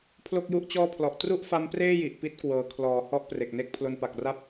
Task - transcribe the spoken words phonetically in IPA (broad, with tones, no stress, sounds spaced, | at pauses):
pʰ l o˥˩ k̚ j u˥˩ ʔ t͡ɕ ɔː˥˩ pʰ l ɔ˨˩ ʔ t r u˥˩ ʔ f a˦˥ m p r eː˥˩ j i˨˩ ʔ p i˦˥ t̚ k w ɤː˩˦ kʰ l ɔː˩˦ h ɔ˦˥ ʔ p r e˨˩ k̚ n e˥˩ k̚ pʰ l o˧ n p a˨˩ k̚ r a˥˩ p̚